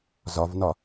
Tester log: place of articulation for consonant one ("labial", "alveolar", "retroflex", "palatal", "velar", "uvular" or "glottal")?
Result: alveolar